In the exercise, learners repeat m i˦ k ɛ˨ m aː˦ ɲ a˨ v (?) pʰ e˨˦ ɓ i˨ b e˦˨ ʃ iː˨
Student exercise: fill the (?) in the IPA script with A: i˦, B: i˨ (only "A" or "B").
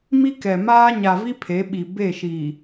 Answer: A